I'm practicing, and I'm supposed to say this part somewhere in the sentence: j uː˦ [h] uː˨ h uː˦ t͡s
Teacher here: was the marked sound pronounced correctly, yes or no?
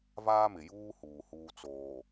yes